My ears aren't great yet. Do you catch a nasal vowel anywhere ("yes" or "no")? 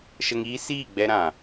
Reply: yes